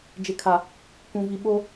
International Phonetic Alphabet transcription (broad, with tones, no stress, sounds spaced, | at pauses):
d͡ʒ ɪ˨ kʰ a˨ | k ũ˨ v i˨ ɓ o˦